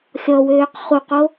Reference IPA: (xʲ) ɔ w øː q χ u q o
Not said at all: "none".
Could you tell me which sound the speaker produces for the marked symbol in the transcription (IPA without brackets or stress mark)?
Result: xʲ